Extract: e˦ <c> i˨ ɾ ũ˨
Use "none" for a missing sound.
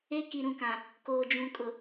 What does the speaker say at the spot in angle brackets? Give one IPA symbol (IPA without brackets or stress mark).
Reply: k